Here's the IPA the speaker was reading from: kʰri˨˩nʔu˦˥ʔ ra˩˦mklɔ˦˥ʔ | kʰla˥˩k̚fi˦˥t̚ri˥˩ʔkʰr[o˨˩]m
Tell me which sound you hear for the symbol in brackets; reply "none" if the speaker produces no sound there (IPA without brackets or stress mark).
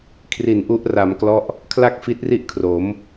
o˩˦